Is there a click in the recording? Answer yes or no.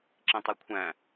yes